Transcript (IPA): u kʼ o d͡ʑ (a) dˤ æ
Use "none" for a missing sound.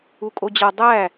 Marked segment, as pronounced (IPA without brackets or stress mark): a